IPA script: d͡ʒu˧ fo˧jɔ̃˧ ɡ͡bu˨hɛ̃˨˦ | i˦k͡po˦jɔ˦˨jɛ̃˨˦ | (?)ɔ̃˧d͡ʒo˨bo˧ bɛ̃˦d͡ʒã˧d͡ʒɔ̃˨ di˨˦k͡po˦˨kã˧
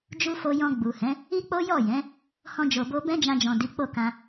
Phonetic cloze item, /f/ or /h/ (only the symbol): h